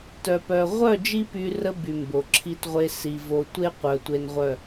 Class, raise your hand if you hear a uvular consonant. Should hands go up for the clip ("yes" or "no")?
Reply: yes